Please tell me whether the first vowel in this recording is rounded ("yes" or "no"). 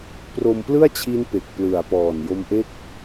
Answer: yes